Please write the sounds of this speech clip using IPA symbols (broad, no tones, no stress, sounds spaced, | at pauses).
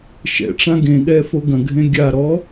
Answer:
ʃ ɛ̰ ʈ͡ʂ ã ɡ ẽ ɠ ɛ f o ɡ ɐ̃ ɡʱ ẽ ɡʲ a ɾ ɔ